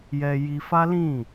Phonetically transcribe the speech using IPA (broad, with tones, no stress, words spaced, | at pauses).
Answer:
jɛ˧ ji˧fa˦lĩ˦˨